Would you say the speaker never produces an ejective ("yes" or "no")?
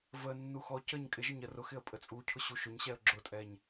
no